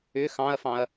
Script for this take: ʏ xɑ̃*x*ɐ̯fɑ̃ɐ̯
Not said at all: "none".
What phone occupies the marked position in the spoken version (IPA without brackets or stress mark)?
none